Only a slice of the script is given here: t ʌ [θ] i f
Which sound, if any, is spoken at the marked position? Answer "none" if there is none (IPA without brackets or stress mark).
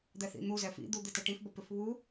ʈ